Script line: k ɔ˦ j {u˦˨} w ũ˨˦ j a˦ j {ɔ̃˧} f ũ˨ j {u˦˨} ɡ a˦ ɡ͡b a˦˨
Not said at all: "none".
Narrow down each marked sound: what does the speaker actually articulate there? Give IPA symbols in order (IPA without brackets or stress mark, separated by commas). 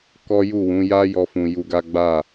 u˦˨, ɔ˧, u˧